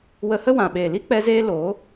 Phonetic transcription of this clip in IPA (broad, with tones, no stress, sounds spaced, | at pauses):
w ə˧ h ə˦ w ã˨ ɓ eː˨ l i˦ k͡p ɛ˧ z eː˧ l oː˨˦